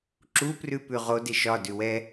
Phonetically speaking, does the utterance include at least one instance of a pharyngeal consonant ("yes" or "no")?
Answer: no